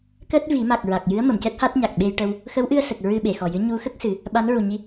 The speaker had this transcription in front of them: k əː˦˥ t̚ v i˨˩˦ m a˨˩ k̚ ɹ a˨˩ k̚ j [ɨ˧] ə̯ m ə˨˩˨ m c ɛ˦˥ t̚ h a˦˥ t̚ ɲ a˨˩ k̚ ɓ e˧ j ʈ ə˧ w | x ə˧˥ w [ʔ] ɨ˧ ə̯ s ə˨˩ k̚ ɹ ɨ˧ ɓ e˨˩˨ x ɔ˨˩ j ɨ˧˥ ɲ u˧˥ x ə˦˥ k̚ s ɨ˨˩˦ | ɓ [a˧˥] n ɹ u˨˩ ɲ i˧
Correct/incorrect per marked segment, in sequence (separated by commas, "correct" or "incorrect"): incorrect, correct, correct